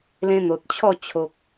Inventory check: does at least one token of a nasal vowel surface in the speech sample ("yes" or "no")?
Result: yes